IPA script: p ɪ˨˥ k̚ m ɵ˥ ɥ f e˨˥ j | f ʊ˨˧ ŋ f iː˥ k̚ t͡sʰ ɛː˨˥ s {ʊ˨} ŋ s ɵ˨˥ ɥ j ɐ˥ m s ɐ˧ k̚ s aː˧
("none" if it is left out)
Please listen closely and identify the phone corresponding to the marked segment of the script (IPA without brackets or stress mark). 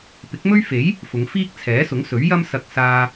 ʊ˨˥